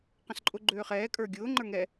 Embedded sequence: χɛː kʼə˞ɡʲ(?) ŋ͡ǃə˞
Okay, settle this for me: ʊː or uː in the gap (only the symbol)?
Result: ʊː